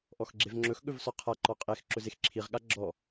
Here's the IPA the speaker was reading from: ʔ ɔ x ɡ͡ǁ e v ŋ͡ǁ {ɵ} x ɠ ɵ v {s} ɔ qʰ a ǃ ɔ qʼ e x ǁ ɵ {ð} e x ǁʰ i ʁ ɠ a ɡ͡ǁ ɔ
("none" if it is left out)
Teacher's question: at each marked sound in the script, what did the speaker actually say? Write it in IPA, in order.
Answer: ɵ, s, z

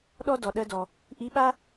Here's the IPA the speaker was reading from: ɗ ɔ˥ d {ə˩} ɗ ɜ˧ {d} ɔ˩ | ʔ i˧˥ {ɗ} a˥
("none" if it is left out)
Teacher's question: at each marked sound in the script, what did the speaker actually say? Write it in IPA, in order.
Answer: ɔ˩, d, ɓ

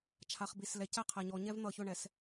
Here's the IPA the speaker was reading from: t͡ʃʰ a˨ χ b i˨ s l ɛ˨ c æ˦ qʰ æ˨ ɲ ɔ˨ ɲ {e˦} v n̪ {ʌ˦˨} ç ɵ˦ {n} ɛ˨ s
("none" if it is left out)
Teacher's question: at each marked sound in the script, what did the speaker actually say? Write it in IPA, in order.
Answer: ɛ˦, ʌ˦˨, ɳ

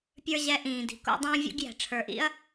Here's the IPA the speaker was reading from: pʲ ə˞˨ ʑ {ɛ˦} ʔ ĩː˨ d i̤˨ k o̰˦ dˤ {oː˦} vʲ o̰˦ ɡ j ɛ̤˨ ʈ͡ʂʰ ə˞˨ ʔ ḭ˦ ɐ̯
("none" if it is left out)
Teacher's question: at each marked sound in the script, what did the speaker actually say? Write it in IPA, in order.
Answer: ɛ˨, õː˦

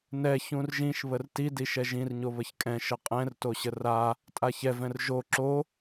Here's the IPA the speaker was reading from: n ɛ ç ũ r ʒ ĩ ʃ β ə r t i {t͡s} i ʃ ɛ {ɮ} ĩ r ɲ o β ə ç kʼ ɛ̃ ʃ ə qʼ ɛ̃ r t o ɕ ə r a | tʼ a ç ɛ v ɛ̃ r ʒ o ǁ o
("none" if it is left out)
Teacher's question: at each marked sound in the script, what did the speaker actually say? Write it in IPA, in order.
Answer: d, ʒ

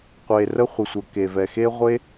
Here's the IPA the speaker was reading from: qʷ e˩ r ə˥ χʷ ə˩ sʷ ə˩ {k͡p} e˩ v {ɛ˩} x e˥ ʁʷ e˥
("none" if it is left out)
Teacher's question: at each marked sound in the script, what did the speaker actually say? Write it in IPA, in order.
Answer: k, ɛ˩

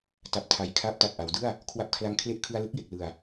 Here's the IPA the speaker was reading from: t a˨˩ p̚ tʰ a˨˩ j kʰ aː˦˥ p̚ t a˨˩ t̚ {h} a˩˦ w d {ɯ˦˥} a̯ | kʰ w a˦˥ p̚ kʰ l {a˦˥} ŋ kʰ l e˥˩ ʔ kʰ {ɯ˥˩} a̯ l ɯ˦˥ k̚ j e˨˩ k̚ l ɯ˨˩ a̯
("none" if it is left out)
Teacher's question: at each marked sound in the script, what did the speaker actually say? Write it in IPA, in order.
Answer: ʔ, ɯ˥˩, a˦˥, ɯ˧

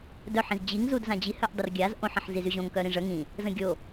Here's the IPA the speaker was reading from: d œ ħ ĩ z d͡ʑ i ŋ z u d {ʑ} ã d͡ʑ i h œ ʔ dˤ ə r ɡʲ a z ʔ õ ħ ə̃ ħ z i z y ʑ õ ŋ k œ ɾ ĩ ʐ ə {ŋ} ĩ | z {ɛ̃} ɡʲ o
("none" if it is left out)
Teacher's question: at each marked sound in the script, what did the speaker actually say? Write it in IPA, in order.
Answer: z, ŋ, ə̃

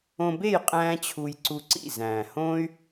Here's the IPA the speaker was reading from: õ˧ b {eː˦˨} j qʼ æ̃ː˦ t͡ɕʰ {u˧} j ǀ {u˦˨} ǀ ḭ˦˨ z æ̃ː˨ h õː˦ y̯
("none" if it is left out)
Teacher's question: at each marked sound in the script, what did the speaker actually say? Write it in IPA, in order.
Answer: e˦˨, u˧, u˧

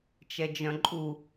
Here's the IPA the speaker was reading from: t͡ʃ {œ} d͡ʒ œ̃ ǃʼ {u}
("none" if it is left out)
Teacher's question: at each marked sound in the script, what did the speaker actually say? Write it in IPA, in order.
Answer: ɛ, u

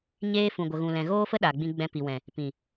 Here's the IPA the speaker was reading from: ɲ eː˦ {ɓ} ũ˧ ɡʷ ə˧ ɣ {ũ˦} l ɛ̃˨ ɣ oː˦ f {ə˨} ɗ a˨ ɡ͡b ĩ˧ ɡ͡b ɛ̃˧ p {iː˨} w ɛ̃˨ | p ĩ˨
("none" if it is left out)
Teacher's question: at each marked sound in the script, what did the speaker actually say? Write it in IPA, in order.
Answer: f, ũ˧, ə˦, i˨

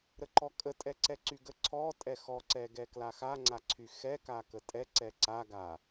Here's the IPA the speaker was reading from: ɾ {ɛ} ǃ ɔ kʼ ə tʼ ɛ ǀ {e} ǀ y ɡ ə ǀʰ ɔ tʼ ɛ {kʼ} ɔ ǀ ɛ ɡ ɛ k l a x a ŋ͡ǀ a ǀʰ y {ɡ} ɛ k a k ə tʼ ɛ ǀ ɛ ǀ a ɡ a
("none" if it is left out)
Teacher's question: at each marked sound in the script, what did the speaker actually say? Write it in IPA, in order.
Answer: ə, ɛ, x, x

